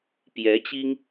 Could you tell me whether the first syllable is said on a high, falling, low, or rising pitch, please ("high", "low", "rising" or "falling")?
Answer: rising